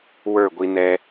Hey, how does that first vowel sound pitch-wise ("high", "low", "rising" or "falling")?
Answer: falling